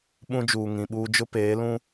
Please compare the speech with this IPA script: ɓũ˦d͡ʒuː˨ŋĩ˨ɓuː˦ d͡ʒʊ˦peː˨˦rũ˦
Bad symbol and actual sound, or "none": r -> l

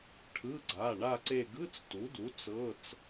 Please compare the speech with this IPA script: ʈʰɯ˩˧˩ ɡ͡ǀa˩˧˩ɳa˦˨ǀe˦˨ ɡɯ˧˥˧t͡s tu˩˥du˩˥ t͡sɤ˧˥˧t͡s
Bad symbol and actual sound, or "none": none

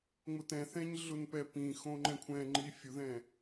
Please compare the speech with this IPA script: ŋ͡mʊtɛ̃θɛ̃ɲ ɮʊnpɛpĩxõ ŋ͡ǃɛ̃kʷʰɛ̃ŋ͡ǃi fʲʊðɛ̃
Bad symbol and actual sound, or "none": none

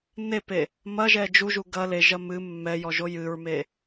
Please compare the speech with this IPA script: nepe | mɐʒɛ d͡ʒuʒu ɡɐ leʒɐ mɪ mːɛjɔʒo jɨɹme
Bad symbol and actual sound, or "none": ɪ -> ɨ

